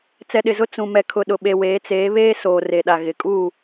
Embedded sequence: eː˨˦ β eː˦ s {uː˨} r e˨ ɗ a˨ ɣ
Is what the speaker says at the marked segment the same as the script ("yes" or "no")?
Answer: no